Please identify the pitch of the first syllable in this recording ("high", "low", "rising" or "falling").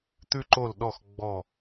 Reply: high